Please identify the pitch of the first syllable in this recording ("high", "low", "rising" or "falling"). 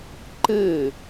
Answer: falling